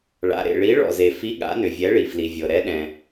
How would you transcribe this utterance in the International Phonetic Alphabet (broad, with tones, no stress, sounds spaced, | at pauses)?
ɭ a̰˩ ɾ ḛ˩ ɭ i˨˥ ɭ ɔ̰˩ z e˩ f i˨˥ ɠ a̰˨˥ n ʏ˩ vʲ ɛ˨˥ ɭ i˩ f l i˩ vʲ ɤ˩ ɾ ɛ˨˥ ɗ ɛ̃˩